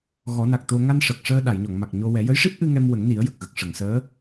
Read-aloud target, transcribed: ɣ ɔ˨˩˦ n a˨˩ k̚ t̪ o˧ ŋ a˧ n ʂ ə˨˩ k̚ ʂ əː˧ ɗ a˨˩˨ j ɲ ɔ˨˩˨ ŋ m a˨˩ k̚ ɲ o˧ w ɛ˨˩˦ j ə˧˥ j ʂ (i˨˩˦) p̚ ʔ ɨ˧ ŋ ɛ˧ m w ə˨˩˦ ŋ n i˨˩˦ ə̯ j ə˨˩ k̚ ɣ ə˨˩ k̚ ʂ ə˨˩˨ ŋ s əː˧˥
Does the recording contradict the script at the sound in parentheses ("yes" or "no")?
yes